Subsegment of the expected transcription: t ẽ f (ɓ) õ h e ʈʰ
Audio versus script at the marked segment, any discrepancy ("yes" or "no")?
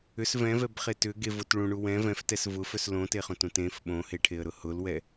no